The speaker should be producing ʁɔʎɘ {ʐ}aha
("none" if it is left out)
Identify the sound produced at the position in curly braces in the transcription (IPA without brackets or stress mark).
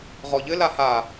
l